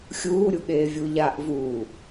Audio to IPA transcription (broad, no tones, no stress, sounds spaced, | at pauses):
xʲ uː ɾʲ u ɠ eː vʲ u ʎ a ʔ v uː